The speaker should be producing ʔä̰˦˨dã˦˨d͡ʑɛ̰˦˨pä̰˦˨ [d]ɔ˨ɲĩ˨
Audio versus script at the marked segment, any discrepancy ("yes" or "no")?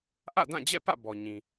yes